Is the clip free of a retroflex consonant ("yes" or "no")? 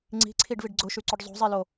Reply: no